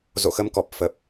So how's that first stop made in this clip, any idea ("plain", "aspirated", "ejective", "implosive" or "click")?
plain